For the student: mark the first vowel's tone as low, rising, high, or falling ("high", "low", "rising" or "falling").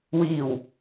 low